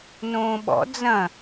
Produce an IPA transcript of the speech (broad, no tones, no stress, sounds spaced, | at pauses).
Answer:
n õː ɓ ɔ̰ d͡z ɐ̃